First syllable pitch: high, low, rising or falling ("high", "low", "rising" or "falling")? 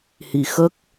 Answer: low